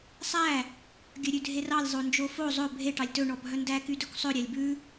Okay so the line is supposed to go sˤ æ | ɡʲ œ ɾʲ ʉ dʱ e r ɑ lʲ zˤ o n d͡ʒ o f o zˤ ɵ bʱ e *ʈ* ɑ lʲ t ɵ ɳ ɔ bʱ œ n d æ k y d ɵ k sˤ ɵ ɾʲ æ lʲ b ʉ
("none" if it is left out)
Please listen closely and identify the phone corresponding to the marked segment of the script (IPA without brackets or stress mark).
ʈ